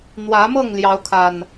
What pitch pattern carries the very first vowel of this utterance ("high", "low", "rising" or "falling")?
rising